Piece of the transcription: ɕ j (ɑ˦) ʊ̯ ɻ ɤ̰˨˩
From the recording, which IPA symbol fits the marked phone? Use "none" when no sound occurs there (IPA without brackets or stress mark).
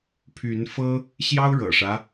ɑ˦